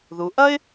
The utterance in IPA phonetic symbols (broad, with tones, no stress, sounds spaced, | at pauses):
ð u˩˧ ʔ ɐ˥ ɪ̯